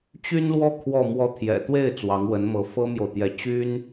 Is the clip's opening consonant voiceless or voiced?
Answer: voiceless